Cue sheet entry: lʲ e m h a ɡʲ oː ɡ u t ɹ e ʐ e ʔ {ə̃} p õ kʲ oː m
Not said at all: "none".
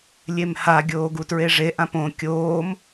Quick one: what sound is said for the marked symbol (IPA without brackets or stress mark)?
ã